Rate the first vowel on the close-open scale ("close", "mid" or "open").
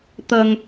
open